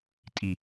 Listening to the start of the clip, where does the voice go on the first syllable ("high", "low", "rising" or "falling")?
low